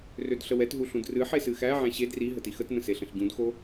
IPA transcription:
rødɬəwɛtɦu ɬũdrɨħe sɨxæʕæ̃ ɕed ri ɦətixətnə̃ seɬə̃ɬɟũdxo

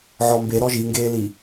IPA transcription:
ʕɔmbe ɾɔʒiŋɡeːli

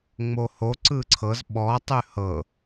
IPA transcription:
ŋ͡moho ǀɯǀʰɤz ɓɔ tˤʉhɤ

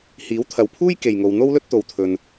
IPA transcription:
hiː˨˥wt̪ʰɐ˨wpʰuː˥j ke˨jŋo˨wn̪o˥wlɵ˥t̚ t̪o˨wt̪ʰɵ˨n

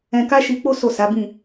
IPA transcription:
ɛ̃˧ka˦ʃi˧k͡po˦ so˦˨sa˨˦bĩ˦˨

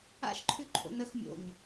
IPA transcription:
a̰ʃǃʰʉǃʰo̰ nəx mʲo̰ɲ

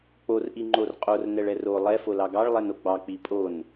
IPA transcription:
k͡por ʔiŋ͡ǃorqʼor nɛɭɛro lˠɛ folɑɡɑɭ lˠɛnoɡ͡bɑ k͡pipʼon

